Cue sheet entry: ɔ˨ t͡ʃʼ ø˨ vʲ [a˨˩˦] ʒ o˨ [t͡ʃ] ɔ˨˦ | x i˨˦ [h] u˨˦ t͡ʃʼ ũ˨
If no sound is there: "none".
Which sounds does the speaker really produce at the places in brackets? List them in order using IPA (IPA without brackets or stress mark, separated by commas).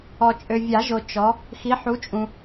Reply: a˨˩˦, t͡ʃ, ħ